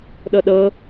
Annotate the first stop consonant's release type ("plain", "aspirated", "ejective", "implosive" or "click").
implosive